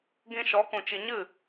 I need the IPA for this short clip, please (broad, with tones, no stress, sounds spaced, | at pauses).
ɡ ĩ˧ ʃ ɔ˨˦ k ũ˨ t͡ʃ i˨ ɲ ɨ˦˨